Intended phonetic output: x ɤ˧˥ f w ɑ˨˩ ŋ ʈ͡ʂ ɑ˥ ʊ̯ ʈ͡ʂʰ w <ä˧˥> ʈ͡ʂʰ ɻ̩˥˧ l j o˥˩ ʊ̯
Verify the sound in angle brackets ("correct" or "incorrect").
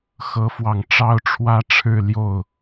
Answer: incorrect